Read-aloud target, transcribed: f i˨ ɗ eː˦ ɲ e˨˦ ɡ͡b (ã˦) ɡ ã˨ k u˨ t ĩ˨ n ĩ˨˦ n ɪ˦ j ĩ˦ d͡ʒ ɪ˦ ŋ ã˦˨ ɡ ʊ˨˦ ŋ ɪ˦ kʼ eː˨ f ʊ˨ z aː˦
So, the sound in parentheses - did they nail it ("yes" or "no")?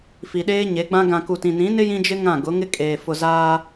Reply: yes